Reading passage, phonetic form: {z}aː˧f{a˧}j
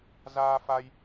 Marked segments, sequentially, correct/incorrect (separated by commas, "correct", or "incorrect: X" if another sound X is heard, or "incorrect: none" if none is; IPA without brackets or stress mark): correct, correct